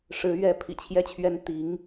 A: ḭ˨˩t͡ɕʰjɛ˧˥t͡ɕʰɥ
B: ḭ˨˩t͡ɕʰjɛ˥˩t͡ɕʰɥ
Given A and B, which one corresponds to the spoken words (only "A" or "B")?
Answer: B